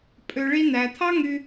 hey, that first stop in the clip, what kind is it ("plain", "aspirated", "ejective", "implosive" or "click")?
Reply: ejective